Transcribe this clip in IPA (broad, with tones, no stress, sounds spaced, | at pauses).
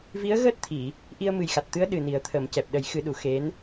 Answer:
v i˧˥ ə̯ ɣ əː˦˥ t̚ t̪ʰ i˨˩˨ | ʔ i˧ ə̯ m ɨ˨˩ j x a˨˩ t̚ t̪ ɨ˧˥ ə̯ ɗ ɨ˨˩ n i˨˩˦ ə̯ t̪ʰ ə˨˩˦ m c ɛ˨˩ p̚ ɗ ə˨˩˦ j x ɨ˨˩˦ ɗ u˨˩˨ x e˧˥ n